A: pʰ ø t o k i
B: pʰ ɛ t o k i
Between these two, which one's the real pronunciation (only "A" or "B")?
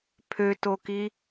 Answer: A